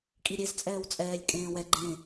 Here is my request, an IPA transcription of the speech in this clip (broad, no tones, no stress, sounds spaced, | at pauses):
kʼ i ɾʲ e z t͡sʼ ɛː w t͡sʼ ɛː lʲ kʼ ẽː w ɛ ɡ͡ǃ ẽ